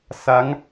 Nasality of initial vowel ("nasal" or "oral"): oral